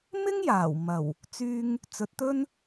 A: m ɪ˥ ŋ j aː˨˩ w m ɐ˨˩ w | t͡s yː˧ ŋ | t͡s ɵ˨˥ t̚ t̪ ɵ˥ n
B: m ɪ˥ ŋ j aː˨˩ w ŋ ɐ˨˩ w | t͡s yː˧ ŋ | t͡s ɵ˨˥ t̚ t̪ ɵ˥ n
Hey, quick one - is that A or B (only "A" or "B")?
A